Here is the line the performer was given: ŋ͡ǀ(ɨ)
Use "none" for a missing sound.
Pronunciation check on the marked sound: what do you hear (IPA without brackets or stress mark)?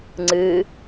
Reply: ɨ